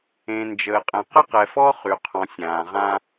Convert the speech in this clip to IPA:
ẽ˨ n d͡ʒ əː˨ qʼ ɛ̃˨ q ə˦ q ɛ˨ f ɔ˦ χ y˨ qʰ ɔ̃˨ sʲ ãː˨ ʁ ã˦

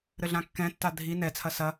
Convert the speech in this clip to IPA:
ɾ ɘ ɮ ã kː ɛ̃ tː a dʱ i n ɛ t͡sʰ ɐ s ɐ

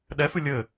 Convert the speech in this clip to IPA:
ɗ ɛ f ɨ lʲ ɘ

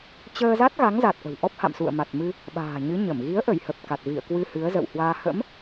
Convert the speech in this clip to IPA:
t͡ɕ əː˧ z a˦˥ t̚ ɣ a˨˦ ŋ z a˨˩ t̚ ʔ ə̤˨˩ w ʔ ɔ˦˥ p̚ h a̰˧˨ m s ṵ˧˨ ə̯ m a˨˩ t̚ m ɨ˧ | ɓ a̤ː˨˩ ɲ ɨ˨˦ ɲ ə˧˩ m ɣ i˨˦ ə̯ ʔ ə˧˩ j h ə˨˩ p̚ k a˨˩ t̚ v ḭ˧˨ ə̯ k w ɨ˧ h ɨ˨˦ ə̯ z ə̰˧˨ w h w aː˧ h ə̰˧˥ m

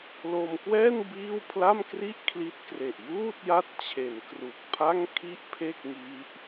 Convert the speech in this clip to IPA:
l o˧ m k w ɛː˥˩ n b iː˥˩ w pʰ l a˥˩ m k r i˥˩ ʔ kʰ l i˦˥ t̚ k r e˨˩ ʔ j uː˥˩ t̚ j a˦˥ t̚ t͡ɕʰ e˩˦ n k r u˨˩ k̚ pʰ a˥˩ ŋ kʰ i˥˩ ʔ pʰ e˥˩ k̚ ŋ i˦˥ ʔ

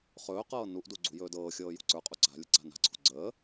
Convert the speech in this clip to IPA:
χ ɵː q ɤː n u ʔ d u ɡ͡ǀ ṳ j ɵː d ɤː xʲ ɤː j ṳ ǀ ə˞ qʼ u ǀ a̤ lʲ ə ǀ a̤ n a̤ ǀʰ ṳ ɡ͡ǀ əː

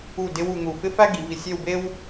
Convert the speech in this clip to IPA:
u˧˩ d ɪ˧ w u˩˧ n̪ u˧˩ f ɪ˥ f æ˥ ɡ i˩˧ v i˧˩ sʲ e˥˧ w b e˥ w

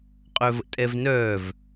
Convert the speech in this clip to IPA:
qʼ œ v ə̰ tʼ ɛ v n œː v

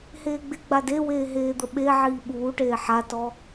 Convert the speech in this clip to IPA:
h eː ɡ͡b ɪ ɡ͡b a d e w eː ɦ eː d̪ ə ɓ e ʕ iː ɓ uː ʈ eː ħ a t ɔ

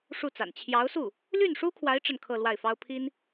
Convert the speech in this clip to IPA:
ʂ u˥˩ t͡s a̰˨˩ n t͡ɕʰ j ɑ˧˥ ʊ̯ s u˥˩ | l y˥˩ n ʂ u˥ kʰ w a˧˥ ɪ̯ ʈ͡ʂ ə˥˧ n kʰ ɤ˥˧ l w a˥˩ ɪ̯ f ɑ˥ ʊ̯ pʰ i˥ n

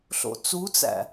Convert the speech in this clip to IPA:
ɬ o̰ t͡s u t͡s æ̰

